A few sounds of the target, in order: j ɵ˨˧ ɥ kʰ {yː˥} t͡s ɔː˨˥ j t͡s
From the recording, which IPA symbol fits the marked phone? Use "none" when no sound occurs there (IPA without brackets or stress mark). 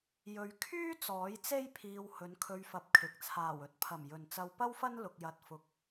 yː˥